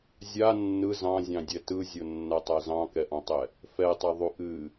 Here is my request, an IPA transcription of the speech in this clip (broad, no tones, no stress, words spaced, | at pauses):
zʲa nːɯ zɑ̃zʲɑ̃dʲɛ tɯzʲonːatˤa zɑ̃kɛʔɑ̃tˤɛ | fɛtˤaðˤu ʔɨ